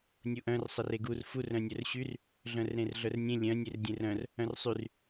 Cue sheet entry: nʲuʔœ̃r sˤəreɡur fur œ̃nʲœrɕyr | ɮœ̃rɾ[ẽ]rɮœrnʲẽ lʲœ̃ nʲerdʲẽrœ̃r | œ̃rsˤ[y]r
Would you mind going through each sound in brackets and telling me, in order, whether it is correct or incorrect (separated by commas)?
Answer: correct, correct